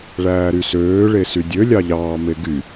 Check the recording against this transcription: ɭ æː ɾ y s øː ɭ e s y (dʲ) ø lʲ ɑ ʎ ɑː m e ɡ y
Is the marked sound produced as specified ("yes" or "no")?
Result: yes